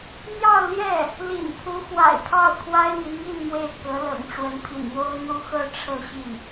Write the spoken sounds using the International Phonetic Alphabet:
n̪ j ɑ˥˧ ʊ̯ l j ɛ˥˩ | l ḭ˨˩ n pʰ u˧˥ x w a̰˨˩ ɪ̯ pʰ ɑ˥˩ ʊ̯ kʰ w a˥ ɪ̯ n̪ i˧˥ ŋ i˥˧ n m w e˥˩ ɪ̯ k ɤ˧˥ l ɤ̰˨˩ ŋ ʈ͡ʂ w ə˧˥ n pʰ ḭ˨˩ n j o˥ ʊ̯ n̪ u˥ x ɤ˥ ʈ͡ʂʰ ɤ˥˧ ɕ i˥˩

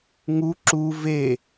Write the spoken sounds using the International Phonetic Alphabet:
ŋ u ǁ u v e

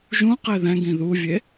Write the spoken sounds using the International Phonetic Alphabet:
ʒ ũ q e ð ɛ̃ ɡ ĩ ð u vʲ e

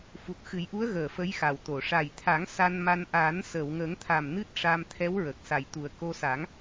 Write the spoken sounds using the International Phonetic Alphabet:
f u˨˩ t̚ x ɨ˨˩˦ j ʔ u˧˥ ə̯ ɣ əː˨˩ f ə˧˥ j x a˨˩ w t̪ o˨˩˨ ʂ a˨˩ j t̪ʰ a˨˩˦ ŋ s a˧ n m a˧ n ʔ aː˨˩˦ n s əː˨˩˨ w ŋ əː˨˩˦ ŋ t̪ʰ a˨˩ m n ɨ˦˥ t̚ ʂ a˧ m t̪ʰ ɛ˧˥ w ɹ ə˨˩ k̚ s a˨˩ j t̪ u˨˩ ə̯ k o˧ s a˨˩˦ ŋ

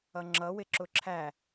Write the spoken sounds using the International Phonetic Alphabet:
ʌ ŋ͡ǁ ʌ w ɪ ǁ ʊ ǁʰ æ

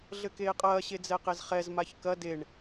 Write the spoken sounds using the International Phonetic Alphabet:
ɮ ɘ k eː qʼ ɐː ɕ e d͡z ɛ q e z χ ɛ z m a ç k ɐ d e ɳ

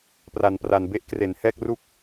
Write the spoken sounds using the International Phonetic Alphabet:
p r a˩˦ n p r a˨˩ n b e˥˩ ʔ k r e˩˦ n h ɛː˥˩ k̚ r u˥˩ k̚

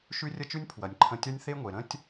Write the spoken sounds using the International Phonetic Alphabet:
ʃ ʉ˦ rʲ ə˦ t͡ʃ ʉ˦ nʲ pʰ w ɐ˨ nʲ ǃʰ ə̃˧ tʲ ɐ˦ nʲ θ e˦ ŋʷ e˨ ɾ ə̃˦ tʲ

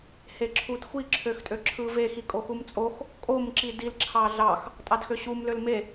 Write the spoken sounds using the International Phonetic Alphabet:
h e ǁʰ u d xʷ i ǁʰ ø x tʼ ø ǁʰ ɯ v e x i kʼ o x u m t͡sʼ o x | kʼ o m ǁ i d i l ǁʰ ɑ ɮ ɑ x | tʼ ɑ d x ø ɕ u m l ø l m e

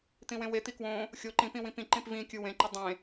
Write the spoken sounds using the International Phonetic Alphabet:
t̪ ĩ w ẽ w e t̪ i k w õ | xʲ o ǃ ĩ p ĩ w ĩ p ĩ ǃ ĩ p v ĩ kʲ ɯ w ẽ ǃ i dˤ ẽ

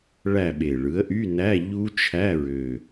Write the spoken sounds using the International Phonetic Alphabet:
ɭ æ˦˨ ɓ e˨˩ ɭ ɯ˩˥ ə̯ ʔ y˧˥˧ n æ˧˥˧ ʎ u˦˥ t͡ʃʰ æ˧˥˧ ɹ ø˨˩

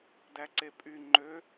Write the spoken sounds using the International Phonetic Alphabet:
d æ ǀ e pʼ y ŋ͡ǃ ø

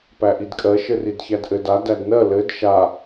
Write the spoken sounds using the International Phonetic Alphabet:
p æ ʔ i d kʼ ɜ ʃ ɘ r i d ç æ d ʔ ɘ d a d æ d n ɜ l ɘ d ʃ a

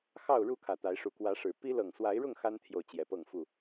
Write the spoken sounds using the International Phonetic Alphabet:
x ɑ˥˨ ʊ̯ ɻ u˥˨ kʰ ä˨˩ t̪ a˨˦ ɪ̯ ʂ u˨˦ k w ä˨˦ ʂ ɻ̩˨˩ p i˦ l ɤ˨˩ ŋ s w a˨˦ ɪ̯ ɻ ʊ˥˨ ŋ x a˦ n t̪ʰ j o˨ ʊ̯ t͡ɕ j ɛ˨˦ p ɤ˥˨ ŋ f u˥˨

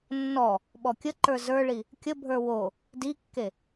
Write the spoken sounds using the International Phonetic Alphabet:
nː ɔ | ɓ ɔ kʲ ə ǃ ə˞ z ə˞ ɭ i | kʲ ə bʱ ə˞ w o | d i kː e

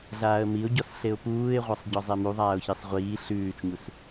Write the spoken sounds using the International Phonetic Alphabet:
ɮ aː ə̯ m i ʊ̯ ɟ ɔ s ɬ e ʊ̯ p uː ɪ̯ ʁʷ a sˤ ɟ ɔ zˤ e m u ðˤ aː ʊ̯ ç i sˤ ʁʷ iː ɬ ʉː t͡ʃ ɲ u s

